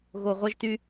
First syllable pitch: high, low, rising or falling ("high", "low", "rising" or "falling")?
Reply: low